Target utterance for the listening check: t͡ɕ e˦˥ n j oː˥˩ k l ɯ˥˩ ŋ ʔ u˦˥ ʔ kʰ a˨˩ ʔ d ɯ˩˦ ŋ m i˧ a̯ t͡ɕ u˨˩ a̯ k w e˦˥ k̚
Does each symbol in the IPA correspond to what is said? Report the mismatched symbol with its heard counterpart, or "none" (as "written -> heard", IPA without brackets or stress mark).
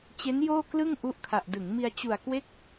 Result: none